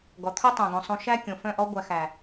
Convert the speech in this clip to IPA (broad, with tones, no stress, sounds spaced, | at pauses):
ɡ ɔ˨ t̪ʰ u˦ tˤ ũ˨ ɡ õ˨ sˤ ũ˨ ʃ æ˦ kʲ õ˨ f œ̃˦˨ ʔ ɔ˦ ɡʷ æ˨ x æ˨